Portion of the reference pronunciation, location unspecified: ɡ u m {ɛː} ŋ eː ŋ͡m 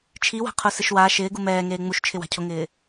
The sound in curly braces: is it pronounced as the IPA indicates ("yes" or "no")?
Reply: yes